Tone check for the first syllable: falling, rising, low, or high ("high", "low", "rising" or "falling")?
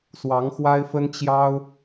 rising